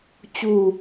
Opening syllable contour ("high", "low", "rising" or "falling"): falling